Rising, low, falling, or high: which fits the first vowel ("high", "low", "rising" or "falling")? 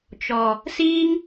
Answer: low